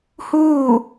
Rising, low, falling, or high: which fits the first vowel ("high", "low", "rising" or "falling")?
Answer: falling